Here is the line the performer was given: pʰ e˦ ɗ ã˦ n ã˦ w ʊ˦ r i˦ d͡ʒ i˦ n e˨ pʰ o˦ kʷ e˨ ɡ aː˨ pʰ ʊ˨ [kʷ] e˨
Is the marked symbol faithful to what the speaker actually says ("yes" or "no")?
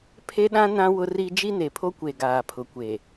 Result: yes